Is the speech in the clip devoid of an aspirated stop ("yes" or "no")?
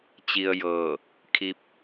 no